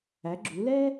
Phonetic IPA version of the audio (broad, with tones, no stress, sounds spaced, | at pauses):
æ˨˦ ɡ͡ǁ u˨˦ l ɛ˥